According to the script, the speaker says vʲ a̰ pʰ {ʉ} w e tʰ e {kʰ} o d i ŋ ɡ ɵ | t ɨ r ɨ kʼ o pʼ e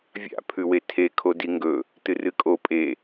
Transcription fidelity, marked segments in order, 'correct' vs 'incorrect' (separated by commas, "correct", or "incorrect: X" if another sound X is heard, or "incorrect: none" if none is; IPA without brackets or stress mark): correct, correct